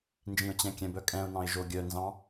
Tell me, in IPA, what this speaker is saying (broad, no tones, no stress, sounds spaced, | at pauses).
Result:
n d͡ʒ ĩ ʊ̯ t͡ɕ ɛ̃ kʲ ɛ̃ b œ kʼ ɛ̃ ʊ̯ n ɑ̃ ɪ̯ ʒ o ɡʲ œ n z ɑ̃